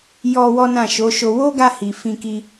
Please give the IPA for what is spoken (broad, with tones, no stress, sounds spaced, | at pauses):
j ɔ˧ w ɔ˦ n ã˦˨ ʃ o˨˦ ʃ o˧ w o˦ ɡ a˧ h i˨ f ĩ˧ k i˧